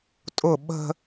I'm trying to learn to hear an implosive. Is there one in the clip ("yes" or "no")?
yes